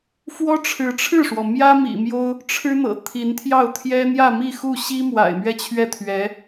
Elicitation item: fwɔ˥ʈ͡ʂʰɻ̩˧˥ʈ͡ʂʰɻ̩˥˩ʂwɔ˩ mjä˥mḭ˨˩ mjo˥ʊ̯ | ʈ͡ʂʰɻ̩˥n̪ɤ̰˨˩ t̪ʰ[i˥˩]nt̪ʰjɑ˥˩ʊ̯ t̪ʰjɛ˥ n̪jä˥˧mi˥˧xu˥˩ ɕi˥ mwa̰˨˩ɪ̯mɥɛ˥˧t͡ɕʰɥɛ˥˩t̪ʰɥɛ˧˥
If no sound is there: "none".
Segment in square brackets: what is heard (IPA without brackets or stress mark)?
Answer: i˧˥